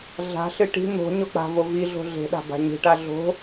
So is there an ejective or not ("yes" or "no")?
no